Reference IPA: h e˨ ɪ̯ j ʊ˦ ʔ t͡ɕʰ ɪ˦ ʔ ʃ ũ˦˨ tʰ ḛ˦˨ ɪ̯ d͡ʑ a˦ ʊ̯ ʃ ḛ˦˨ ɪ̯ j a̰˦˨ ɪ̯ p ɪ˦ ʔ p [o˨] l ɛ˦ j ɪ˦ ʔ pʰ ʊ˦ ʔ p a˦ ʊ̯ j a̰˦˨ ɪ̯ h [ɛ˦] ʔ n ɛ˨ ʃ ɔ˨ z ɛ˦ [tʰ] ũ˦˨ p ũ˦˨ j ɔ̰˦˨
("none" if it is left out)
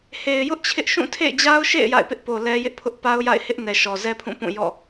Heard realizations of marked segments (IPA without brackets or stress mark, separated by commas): o˨, ɪ˦, pʰ